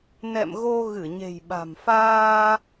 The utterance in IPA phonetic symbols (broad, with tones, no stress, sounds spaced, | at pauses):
n ɛ̰˧˨ m ɣ o˧ ɣ ɨ˧˩ ɲ e̤˨˩ j ɓ a̤˨˩ m f aː˧